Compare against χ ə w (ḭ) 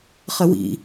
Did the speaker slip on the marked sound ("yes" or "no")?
no